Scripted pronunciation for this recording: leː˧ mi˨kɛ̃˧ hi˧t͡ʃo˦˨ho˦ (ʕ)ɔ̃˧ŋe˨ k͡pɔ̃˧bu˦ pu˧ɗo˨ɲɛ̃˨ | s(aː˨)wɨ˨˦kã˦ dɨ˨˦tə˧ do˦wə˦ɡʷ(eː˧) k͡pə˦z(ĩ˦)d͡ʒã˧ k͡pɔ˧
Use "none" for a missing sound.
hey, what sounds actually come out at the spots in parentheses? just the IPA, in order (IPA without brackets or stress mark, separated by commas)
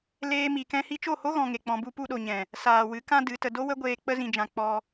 ɣ, aː˨, eː˧, ĩ˧